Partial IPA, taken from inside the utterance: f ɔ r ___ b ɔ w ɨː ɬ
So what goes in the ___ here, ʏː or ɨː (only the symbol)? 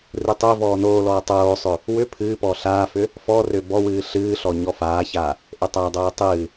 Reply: ʏː